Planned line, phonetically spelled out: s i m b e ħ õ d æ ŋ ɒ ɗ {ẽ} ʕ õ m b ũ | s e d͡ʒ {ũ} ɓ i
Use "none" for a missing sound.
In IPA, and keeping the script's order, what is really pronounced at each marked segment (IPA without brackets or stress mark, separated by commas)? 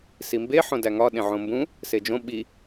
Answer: ẽ, õ